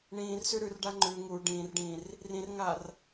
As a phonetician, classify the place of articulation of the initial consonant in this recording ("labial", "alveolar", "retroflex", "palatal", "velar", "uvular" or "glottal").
retroflex